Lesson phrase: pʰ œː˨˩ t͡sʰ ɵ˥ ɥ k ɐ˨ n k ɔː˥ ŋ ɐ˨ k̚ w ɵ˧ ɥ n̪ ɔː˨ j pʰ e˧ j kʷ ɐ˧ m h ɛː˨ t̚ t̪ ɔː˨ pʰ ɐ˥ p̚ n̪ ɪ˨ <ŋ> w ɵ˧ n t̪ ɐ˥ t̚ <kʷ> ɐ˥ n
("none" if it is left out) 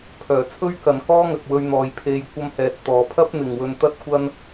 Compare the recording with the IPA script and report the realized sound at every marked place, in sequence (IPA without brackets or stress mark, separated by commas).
ŋ, kʷ